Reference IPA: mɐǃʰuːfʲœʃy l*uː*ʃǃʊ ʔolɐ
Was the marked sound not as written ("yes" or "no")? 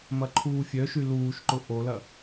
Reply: no